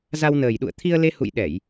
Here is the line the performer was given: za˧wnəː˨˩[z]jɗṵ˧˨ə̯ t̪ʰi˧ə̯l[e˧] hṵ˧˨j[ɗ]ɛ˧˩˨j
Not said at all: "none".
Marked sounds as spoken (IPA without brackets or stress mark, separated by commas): none, e˧, ɗ